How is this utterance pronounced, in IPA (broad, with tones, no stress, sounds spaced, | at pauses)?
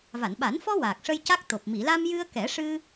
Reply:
v a˨˩˨ n ɓ a˨˩˦ n f ɔ˧ w aː˨˩ k̚ ʂ ə˧ j c a˦˥ k̚ t̪ o˨˩ p̚ m i˨˩˨ l a˧ m j ɨ˧ ə̯ k ɛ˨˩˦ ʂ ɨ˧